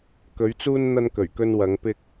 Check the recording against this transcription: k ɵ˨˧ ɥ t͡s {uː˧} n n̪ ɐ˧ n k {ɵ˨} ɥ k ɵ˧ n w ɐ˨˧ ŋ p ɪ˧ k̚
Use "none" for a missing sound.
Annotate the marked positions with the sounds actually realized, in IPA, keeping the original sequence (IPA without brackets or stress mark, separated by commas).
uː˧, ɵ˨˩